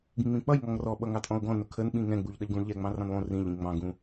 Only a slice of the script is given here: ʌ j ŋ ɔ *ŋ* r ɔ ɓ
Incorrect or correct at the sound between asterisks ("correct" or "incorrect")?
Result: correct